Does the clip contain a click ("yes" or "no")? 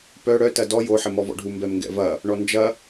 no